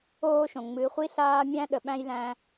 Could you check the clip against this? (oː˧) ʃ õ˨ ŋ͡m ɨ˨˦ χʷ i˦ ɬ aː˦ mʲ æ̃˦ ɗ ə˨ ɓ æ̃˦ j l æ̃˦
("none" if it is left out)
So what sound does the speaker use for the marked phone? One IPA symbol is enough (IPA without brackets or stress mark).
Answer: oː˦